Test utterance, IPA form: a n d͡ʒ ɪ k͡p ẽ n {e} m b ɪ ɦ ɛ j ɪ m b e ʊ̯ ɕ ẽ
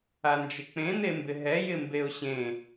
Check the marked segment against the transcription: correct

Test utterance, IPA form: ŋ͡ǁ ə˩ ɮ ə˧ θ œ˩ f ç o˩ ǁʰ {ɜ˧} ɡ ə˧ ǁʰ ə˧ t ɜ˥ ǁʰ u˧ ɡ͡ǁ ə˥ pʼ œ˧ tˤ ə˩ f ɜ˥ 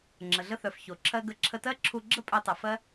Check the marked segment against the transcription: correct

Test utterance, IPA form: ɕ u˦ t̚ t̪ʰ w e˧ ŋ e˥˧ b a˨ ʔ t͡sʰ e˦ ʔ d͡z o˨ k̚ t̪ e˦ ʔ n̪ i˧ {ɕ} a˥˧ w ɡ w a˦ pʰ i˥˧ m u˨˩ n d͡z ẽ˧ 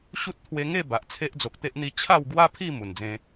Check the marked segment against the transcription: incorrect: t͡ɕʰ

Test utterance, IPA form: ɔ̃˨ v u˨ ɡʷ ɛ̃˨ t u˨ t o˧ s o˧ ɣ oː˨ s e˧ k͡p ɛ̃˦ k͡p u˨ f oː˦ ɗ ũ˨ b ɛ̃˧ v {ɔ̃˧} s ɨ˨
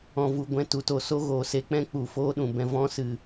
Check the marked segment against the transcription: correct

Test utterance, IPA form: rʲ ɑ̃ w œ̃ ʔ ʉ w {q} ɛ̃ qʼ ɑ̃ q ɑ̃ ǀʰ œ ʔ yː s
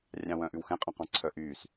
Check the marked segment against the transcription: incorrect: x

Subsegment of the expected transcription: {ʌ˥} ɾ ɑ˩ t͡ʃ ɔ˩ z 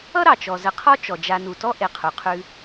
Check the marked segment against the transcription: correct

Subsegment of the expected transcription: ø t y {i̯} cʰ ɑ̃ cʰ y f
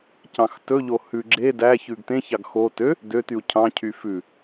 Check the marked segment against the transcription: incorrect: u̯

